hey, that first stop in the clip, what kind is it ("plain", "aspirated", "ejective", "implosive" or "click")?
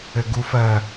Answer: plain